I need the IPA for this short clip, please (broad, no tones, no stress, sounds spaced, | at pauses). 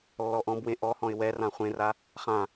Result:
lː ɔ ʔ ɔ̃ b w ẽ ʔ ɔ h ɔ̃ ɪ̯ w ɛ r ã χʷ ẽ r a | χ ã